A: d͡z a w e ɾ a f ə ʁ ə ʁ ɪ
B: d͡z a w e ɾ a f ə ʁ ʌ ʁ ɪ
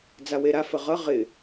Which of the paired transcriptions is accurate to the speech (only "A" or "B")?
B